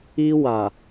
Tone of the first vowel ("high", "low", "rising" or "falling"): high